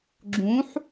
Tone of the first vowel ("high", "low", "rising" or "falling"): rising